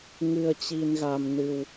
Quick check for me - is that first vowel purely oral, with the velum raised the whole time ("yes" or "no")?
yes